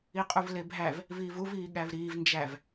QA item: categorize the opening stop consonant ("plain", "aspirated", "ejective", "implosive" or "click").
ejective